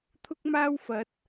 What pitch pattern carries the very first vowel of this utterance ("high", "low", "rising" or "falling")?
high